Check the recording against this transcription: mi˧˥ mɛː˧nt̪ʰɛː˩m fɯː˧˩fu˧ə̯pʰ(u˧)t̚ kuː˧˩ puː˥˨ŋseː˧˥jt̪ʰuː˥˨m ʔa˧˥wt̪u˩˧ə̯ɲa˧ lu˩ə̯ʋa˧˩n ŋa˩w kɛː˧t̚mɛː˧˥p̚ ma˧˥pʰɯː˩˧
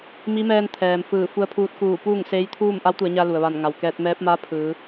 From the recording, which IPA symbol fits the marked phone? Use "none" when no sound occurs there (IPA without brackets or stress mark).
uː˧